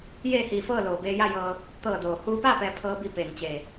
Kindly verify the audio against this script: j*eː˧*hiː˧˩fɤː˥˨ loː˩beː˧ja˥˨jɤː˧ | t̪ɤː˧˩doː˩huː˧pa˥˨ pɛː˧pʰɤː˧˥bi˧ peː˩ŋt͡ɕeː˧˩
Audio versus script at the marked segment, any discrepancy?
yes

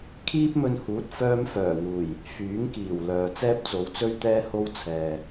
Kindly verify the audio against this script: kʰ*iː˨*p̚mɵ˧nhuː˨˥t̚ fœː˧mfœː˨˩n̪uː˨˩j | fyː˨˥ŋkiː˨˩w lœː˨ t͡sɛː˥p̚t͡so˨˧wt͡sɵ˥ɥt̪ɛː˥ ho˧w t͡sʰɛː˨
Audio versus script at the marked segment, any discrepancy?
yes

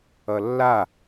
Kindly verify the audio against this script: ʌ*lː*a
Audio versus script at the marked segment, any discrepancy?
no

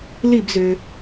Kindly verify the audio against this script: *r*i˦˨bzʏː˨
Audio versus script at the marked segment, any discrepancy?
yes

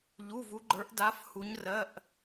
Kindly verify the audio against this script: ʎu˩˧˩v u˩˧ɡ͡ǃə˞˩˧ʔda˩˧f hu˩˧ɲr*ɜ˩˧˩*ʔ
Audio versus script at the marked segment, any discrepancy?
no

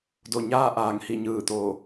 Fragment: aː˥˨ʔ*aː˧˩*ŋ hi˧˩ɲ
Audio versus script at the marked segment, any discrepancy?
no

